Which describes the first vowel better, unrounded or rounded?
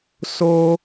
rounded